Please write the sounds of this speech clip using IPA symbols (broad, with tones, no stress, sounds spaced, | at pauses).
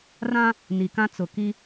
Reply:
r ã˦ | n i˨ k ã˦ t͡s ʊ˨ k i˦